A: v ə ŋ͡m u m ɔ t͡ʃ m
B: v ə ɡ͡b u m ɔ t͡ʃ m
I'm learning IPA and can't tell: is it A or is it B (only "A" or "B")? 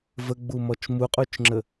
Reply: B